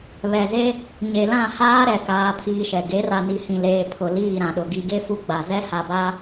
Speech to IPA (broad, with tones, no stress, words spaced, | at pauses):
βɛ˨ze˦ | ɲe˨lã˦˨haː˦ɾɛ˨ kaː˦pʰiː˦ʃɛ˨ ɡe˨˦ra˨ni˨ hĩ˨leː˨ pʰʊ˨ liː˦˨ɾã˨ɗʊ˨ ɡi˨ɡe˦ fu˦ɡ͡ba˨ zɛ˦ha˨ba˦